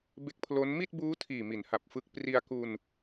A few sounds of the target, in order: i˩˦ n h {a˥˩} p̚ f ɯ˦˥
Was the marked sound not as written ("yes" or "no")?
yes